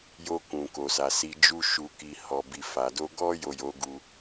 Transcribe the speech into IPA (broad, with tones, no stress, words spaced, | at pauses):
jo˧kũ˨ko˨sa˨ si˨ d͡ʒu˧ ʃu˨ki˨ hɔ˨bi˨fa˨ do˧ ɡɔ˧jo˨ jo˨˦ɡu˧